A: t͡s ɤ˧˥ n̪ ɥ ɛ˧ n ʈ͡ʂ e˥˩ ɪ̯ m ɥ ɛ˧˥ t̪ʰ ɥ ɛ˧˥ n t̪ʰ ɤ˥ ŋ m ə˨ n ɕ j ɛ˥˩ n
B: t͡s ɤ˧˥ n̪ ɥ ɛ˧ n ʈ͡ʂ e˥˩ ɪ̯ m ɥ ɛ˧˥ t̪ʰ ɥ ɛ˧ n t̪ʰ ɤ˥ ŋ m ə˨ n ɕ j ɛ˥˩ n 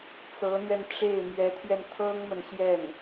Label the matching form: B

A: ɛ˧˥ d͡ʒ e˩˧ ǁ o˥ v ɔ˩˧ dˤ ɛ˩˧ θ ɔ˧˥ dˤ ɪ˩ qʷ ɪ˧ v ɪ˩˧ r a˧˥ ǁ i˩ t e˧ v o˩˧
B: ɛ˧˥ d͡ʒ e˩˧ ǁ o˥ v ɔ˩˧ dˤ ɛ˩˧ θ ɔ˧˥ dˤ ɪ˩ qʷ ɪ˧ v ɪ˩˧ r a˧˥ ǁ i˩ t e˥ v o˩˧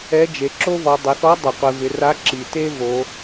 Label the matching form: B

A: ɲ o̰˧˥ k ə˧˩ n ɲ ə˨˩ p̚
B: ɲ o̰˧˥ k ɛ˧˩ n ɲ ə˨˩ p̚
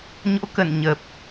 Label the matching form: A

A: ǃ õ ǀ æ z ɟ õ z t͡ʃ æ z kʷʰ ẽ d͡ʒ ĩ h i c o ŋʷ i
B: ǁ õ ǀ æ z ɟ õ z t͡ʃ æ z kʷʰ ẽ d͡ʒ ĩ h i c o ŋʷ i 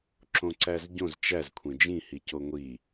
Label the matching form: B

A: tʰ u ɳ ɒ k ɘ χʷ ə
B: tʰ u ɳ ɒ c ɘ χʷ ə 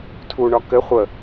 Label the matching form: A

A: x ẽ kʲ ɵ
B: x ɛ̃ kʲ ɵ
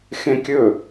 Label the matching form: A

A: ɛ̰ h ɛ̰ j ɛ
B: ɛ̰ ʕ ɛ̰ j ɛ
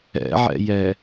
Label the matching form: B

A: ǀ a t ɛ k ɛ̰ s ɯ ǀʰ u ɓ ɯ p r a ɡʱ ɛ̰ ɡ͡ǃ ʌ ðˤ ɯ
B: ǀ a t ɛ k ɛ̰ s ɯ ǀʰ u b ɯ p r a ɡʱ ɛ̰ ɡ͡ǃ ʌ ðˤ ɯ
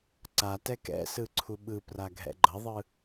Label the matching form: A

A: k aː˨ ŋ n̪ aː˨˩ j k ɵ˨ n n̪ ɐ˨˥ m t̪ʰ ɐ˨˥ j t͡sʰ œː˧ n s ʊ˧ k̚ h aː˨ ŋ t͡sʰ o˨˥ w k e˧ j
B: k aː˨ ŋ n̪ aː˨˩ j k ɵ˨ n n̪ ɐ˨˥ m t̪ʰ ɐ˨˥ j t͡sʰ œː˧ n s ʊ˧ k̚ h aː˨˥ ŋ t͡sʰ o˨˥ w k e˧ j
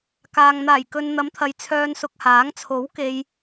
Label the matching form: B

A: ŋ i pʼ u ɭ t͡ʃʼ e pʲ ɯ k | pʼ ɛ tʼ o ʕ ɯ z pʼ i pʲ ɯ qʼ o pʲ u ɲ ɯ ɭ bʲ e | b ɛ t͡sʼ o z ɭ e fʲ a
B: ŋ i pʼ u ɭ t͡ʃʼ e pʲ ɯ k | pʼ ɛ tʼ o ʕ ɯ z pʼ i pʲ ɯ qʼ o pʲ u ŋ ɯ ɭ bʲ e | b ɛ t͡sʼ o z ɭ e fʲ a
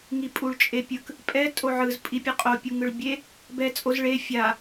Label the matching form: B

